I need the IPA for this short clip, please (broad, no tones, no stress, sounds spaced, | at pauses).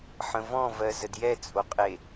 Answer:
ħ ə̃ v ɔ̃ v ɜ z ə d j ɛ t͡sʼ o qʼ e